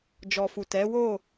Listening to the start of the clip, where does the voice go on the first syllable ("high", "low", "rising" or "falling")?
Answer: low